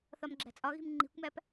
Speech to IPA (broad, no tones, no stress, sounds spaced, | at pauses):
θ ɒ m ɡ͡ǁ æ̤ t͡sʼ ɒ ɣ i̤ m ŋ͡ǃ i̤ kʷ m æ p